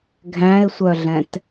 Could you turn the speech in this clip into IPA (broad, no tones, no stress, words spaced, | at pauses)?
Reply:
ɡʱæ̃ɪ̯sʷœɮɛ̃t